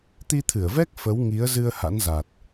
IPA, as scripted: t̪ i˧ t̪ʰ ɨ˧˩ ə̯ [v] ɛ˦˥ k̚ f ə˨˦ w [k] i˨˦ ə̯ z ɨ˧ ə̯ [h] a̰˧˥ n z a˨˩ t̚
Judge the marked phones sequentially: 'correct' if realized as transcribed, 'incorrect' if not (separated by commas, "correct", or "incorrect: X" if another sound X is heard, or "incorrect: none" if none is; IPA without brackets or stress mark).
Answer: correct, incorrect: ŋ, correct